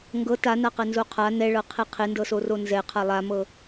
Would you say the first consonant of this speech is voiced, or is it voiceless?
voiced